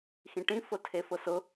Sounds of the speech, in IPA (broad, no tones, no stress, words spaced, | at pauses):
xĩʈĩ fʊtʰefʊsʊ